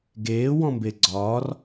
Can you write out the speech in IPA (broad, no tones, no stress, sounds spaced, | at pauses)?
ɡ eː w ɔ̃ m b e ɡ͡ǀ ɒː r